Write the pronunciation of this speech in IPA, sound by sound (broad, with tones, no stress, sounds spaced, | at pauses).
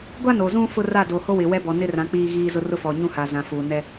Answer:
ɡʷ a˦ n o˨ z ũ˦ f ʊ˦ r a˦˨ d o˨ h o˦ w ɪ˨ w ɛ˦ b ɔ˨ n ɪ˦ r ã˨˦ k͡p iː˦ ɣ iː˦ z ʊ˦ r ʊ˦ f ɔ˨ ɲ ũ˦ h a˨ z ã˨ f uː˨ n ɛ˦